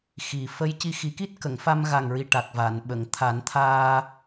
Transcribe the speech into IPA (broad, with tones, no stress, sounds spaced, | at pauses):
x i˨˩ f ə˧ j c i˧ x i˨˩˦ k i˦˥ t̚ k ə˨˩˨ ŋ f a˧ m ɣ a˨˩ ŋ ɹ i˨˩ ʈ a˨˩ k̚ v a˨˩˨ n ɓ ə˨˩˨ ŋ t̪ʰ a˨˩˦ n t̪ʰ aː˧